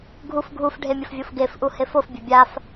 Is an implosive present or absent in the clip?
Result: absent